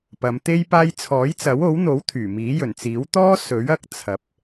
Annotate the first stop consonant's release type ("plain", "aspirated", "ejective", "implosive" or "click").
plain